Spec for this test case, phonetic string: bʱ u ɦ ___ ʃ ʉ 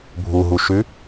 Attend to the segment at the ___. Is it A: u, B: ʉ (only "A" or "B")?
A